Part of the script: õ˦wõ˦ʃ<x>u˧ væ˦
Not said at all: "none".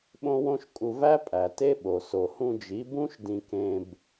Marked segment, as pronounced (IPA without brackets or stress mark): kʼ